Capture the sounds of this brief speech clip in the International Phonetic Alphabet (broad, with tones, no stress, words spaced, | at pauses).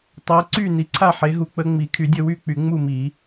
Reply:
tˤɤ˨˦ǀy˥˨ ni˨˦ǀʰa˥˨ħe˨˦ɦu˨˦ k͡pə˨˦ŋ͡mi˨˩˦kʰy˨˩˦dʲə˥˨ wy˥˨k͡py˨˩˦ ŋ͡mu˥˨mi˨˩˦